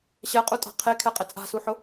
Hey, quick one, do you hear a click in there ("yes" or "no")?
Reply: no